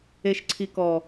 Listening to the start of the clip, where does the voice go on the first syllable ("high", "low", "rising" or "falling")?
low